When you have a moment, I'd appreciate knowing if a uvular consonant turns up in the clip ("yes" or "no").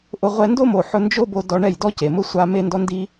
yes